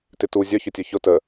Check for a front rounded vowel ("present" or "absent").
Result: present